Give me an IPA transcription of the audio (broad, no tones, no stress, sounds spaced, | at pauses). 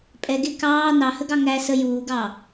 pʼ ɛ ɡ e k ɑː n ɑ h ə ɡ ɑ ŋ æ s ə j uː ɡ ɑ